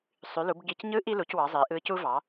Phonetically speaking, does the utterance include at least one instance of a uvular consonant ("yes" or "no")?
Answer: no